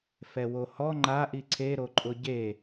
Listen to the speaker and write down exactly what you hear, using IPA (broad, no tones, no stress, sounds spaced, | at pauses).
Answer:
f ɛ w o h ɔ ŋ͡ǃ a ʔ i ǀʰ e ɾ o ǃʼ ʊ ɟ e